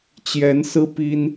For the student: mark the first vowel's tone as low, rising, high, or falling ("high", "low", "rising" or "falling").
rising